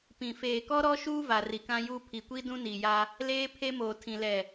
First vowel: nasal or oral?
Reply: nasal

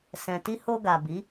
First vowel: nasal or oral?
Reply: nasal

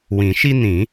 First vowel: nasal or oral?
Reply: nasal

